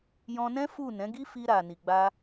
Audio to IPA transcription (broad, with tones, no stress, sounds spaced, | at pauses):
j ɔ̃˧ n ɛ̃˦ f u˦˨ n ɛ̃˨˦ ɡ i˦ f i˧ ɾ a˨ n i˨ ɡ͡b a˧